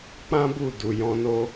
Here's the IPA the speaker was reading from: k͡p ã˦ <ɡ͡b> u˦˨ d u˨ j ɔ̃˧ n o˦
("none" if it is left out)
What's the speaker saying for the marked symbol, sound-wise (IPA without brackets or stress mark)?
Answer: b